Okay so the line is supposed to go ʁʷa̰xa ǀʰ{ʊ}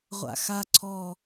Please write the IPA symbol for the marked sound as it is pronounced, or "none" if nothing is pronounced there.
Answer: ɔ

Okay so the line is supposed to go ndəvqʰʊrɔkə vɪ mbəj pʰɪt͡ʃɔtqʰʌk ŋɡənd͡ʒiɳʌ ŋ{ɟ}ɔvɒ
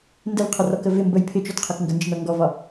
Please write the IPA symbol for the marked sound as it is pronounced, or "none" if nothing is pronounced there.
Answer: ɡ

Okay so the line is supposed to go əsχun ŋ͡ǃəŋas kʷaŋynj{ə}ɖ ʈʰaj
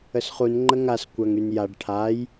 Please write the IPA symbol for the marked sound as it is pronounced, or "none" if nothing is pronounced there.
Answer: a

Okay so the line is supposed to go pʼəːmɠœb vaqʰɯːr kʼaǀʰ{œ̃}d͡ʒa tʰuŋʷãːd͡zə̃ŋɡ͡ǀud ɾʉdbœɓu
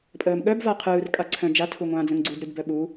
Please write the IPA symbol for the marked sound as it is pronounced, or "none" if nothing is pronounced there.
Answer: œ̃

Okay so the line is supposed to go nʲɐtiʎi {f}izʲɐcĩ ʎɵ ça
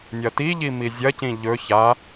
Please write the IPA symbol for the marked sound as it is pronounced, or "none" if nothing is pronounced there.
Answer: m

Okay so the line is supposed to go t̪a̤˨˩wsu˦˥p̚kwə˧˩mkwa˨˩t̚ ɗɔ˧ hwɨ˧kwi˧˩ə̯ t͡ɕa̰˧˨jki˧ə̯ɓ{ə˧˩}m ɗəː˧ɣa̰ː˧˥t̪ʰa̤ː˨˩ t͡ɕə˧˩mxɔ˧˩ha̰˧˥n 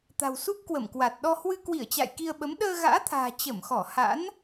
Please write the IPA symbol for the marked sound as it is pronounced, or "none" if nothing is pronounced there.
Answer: ə˨˦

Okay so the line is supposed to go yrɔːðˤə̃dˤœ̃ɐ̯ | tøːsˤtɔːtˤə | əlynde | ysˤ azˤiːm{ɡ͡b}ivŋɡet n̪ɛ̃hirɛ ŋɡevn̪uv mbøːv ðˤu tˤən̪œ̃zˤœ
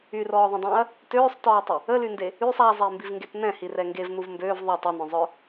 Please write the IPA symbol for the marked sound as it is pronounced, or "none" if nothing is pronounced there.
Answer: b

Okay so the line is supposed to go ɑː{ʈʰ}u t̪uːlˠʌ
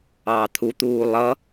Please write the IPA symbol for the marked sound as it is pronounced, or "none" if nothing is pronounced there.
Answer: t̪ʰ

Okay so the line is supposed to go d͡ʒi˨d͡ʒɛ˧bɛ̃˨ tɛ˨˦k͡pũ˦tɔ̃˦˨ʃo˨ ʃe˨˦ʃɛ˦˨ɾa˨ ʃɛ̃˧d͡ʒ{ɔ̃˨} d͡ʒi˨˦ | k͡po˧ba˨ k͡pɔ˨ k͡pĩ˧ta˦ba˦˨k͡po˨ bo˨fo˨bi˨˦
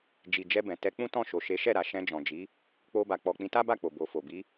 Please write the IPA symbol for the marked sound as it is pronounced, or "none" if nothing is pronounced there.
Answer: ɔ̃˨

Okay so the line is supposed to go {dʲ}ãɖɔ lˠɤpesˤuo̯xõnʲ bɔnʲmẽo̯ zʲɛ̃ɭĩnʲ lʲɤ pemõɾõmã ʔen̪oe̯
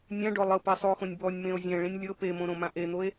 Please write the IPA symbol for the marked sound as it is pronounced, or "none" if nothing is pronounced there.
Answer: nʲ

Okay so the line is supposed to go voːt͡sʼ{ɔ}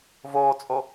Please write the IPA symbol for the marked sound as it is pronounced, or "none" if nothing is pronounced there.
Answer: o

